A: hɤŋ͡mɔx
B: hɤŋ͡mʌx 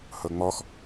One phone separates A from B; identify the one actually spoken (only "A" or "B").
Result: A